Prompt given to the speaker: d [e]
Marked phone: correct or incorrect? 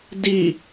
incorrect